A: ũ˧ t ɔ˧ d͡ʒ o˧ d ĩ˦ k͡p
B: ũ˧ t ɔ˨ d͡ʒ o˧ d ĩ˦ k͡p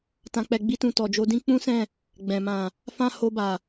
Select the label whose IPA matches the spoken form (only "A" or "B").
B